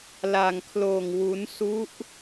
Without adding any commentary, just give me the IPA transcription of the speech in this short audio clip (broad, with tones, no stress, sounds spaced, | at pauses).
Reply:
l a˧ ŋ kʰ l oː˧ ŋ w u˦˥ n s u˦˥ ʔ